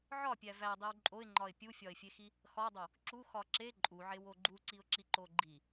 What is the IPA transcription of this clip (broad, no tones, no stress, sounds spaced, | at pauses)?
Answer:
ʕ ɒ pʲ æ v æ dˤ i w ǃʼ o ɪ̯ ŋ͡ǃ ɒ ɪ̯ pʲ u fʲ ɒ ɪ̯ fʲ e x i | x ɒ dˤ o | ǁ u x ɒ ǁ e ǃʼ u ʕ e w o ɡ͡ǃ u ǀ i ʊ̯ ǁ i ǃ o ɡ͡ǃ i